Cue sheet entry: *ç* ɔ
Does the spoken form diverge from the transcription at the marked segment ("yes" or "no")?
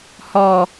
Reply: yes